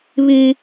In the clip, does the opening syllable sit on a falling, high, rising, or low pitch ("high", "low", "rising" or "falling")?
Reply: high